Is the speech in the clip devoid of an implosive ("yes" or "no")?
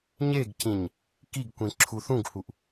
yes